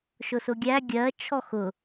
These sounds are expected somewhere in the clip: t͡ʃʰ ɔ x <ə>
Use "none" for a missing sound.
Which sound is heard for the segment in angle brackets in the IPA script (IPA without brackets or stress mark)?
ʊ